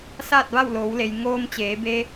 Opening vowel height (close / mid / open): open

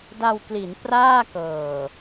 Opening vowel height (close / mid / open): open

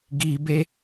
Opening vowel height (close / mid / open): close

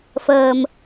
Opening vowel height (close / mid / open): mid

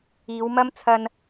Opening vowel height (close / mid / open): close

